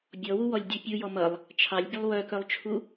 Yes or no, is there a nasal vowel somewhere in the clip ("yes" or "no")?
no